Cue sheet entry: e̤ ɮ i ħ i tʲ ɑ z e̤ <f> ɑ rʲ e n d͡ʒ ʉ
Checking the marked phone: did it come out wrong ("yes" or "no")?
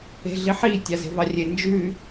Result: yes